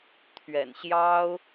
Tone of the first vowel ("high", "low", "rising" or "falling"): low